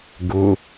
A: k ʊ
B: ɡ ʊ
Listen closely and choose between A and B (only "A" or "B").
B